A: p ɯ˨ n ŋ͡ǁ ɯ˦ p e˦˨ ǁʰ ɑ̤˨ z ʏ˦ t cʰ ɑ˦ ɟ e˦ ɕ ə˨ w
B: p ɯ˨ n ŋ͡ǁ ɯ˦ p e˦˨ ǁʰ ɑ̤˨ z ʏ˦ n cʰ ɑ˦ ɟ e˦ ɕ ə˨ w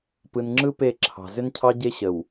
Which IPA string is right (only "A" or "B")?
B